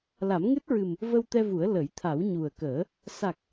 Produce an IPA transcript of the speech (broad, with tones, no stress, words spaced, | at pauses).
la˨˩˦mŋɨ˦˥t̚ɹɨ˨˩m | və˧wt̪ɛ˧vu˨˩˦ə̯ lə˨˩˦jt̪ʰa˨˩˦w ɲu˨˩ə̯kəː˨˩˦ | sa˨˩k̚